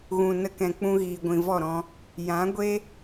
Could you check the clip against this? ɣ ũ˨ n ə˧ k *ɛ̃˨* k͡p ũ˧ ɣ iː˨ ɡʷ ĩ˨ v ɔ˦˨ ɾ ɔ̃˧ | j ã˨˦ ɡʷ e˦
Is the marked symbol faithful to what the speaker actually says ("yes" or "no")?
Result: yes